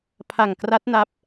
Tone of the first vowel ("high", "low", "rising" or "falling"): low